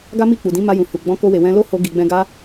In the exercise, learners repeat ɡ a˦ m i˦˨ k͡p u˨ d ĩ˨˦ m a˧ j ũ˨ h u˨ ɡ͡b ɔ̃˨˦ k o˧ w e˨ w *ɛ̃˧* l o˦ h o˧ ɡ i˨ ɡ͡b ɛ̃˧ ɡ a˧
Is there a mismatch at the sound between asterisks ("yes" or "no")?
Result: no